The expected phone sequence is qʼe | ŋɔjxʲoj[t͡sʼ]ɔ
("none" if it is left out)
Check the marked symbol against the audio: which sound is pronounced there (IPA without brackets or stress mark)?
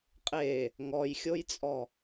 t͡sʼ